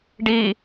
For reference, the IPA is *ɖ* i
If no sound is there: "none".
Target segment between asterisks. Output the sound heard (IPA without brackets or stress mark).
ɖ